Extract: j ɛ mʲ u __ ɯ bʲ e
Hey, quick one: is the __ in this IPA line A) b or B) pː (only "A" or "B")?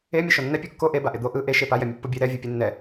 B